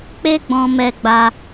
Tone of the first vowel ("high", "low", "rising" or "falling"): high